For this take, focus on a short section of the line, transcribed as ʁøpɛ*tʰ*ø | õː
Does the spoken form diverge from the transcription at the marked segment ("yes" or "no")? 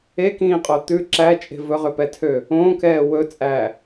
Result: no